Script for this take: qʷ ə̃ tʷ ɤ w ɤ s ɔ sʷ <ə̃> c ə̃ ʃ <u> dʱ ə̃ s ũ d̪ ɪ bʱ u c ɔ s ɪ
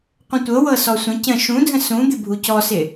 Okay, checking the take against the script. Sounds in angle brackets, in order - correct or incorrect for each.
correct, incorrect: ũ

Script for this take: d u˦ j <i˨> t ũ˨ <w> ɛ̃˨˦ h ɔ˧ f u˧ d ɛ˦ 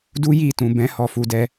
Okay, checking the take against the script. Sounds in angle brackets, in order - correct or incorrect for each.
incorrect: i˦˨, incorrect: b

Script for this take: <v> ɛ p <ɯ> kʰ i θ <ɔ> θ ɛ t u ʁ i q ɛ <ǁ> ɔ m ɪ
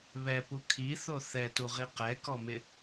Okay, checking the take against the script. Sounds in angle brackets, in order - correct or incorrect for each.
incorrect: β, incorrect: u, incorrect: o, incorrect: k

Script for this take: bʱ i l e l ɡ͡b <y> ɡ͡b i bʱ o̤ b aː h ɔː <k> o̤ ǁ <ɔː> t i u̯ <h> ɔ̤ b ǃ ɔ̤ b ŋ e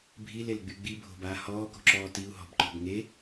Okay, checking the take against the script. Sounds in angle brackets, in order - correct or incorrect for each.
correct, correct, correct, incorrect: ɦ

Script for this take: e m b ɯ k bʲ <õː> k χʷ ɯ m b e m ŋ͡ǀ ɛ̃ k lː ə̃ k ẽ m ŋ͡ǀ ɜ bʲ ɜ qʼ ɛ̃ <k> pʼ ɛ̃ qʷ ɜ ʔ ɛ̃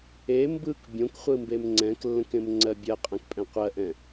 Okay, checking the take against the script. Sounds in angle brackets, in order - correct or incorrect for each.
incorrect: õ, correct

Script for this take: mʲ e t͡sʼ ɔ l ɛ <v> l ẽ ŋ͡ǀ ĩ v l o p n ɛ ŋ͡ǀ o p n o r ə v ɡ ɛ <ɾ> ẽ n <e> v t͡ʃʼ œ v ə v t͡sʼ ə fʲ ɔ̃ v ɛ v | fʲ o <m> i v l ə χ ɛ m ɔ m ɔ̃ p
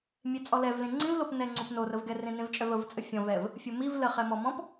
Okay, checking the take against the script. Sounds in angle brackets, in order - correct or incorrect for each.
correct, incorrect: r, incorrect: ẽ, correct

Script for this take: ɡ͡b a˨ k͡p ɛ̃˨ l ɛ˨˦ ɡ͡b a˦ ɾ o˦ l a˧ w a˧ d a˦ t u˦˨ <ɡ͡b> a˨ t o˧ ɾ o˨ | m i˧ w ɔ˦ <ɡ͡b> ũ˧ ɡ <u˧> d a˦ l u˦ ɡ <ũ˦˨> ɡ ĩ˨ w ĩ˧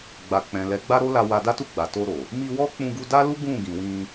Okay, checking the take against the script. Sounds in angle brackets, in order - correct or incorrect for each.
correct, incorrect: k͡p, correct, correct

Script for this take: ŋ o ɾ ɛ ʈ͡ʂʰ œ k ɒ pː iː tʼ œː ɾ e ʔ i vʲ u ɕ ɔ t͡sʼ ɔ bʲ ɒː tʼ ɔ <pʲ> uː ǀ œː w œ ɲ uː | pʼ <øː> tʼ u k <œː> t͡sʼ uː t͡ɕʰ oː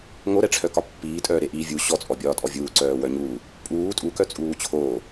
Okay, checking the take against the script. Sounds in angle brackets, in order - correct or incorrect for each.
incorrect: vʲ, incorrect: uː, incorrect: œ

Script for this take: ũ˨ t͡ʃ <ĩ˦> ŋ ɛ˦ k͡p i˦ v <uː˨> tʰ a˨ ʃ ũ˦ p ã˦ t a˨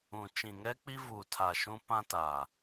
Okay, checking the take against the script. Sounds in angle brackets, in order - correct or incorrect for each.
incorrect: ĩ˨, correct

